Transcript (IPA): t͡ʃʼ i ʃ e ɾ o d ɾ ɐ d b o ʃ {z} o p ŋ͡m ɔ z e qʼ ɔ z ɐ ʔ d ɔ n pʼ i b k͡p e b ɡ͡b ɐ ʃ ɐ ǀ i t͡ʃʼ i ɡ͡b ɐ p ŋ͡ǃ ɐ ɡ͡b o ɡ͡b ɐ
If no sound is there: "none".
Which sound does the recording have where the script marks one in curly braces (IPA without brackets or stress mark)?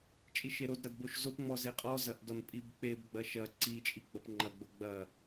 z